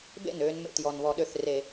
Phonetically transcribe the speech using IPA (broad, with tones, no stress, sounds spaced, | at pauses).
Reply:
b ḛ˥˩ n øː˧ n m ḛ˩ t j ɔ˩ n β ɔ˧˩˧ ɗ ø˧˩ θ r e˧˩˧